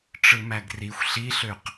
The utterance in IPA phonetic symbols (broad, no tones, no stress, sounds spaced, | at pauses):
ʈ͡ʂ ɯ m æ ɡ r i xʷ ɬ i ɬ ø q